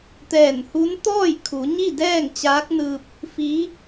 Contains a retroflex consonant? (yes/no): no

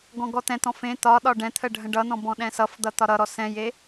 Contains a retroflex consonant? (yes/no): yes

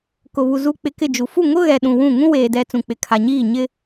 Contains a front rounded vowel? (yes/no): no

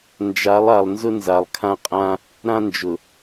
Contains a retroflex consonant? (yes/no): no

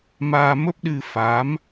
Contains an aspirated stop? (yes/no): no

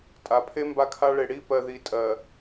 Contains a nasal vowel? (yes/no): no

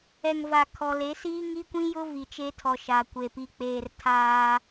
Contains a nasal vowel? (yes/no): yes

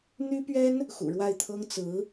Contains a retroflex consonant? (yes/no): yes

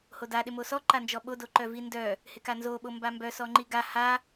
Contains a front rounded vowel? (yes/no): yes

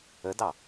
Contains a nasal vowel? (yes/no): no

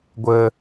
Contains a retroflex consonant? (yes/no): no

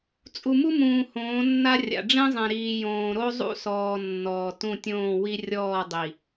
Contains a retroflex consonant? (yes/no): yes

